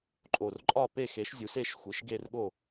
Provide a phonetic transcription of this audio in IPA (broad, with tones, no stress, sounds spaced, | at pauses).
ǃʼ o˨˩ r ǃʼ ɒ˦˨ p e˦˨ x e˩˥ ʃ zʲ u˩˥ s e˦˨ ʃ xʷ i˩˥ ʃ ɡ e˦˨ r ɠ o˦˨